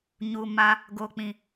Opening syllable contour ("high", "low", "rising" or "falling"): low